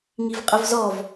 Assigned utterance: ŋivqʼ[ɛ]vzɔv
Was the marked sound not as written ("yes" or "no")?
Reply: yes